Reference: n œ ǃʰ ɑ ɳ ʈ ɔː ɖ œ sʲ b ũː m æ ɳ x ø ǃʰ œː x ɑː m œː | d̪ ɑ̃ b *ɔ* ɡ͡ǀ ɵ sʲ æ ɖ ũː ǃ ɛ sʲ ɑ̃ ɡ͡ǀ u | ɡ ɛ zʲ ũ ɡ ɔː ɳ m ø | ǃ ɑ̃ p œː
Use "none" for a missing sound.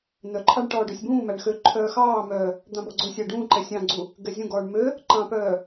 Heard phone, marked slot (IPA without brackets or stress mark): ɔ